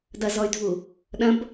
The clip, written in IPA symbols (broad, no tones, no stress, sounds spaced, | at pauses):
d ɐ z ɔ y̯ dʱ u | ɗ ɐ̃ b